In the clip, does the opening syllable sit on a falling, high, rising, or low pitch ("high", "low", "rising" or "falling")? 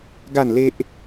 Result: falling